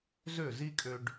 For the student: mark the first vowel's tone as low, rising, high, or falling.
falling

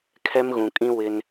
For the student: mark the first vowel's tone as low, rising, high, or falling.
high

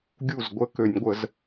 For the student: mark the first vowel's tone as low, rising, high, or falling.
falling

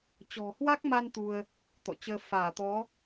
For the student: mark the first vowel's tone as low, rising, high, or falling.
low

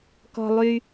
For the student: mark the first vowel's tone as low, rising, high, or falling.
low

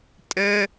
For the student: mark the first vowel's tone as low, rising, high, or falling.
high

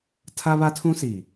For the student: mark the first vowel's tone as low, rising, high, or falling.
high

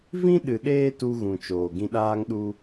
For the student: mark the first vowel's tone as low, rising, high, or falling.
high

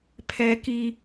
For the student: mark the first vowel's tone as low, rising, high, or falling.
high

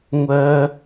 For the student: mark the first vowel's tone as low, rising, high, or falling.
high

